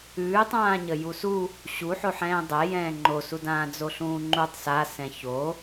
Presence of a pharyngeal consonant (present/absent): present